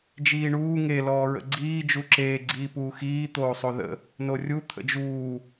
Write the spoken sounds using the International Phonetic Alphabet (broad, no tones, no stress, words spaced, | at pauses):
d͡ʒiːɳuː ŋe lɔːɹə̰ɡ͡ǀiː d͡ʒuǁeː ɡ͡ǀiːpuːxiː t̪oːsˤoðə̰ | norʲu t̪ʰə̰d͡ʒuː